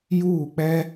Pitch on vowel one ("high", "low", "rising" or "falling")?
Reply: falling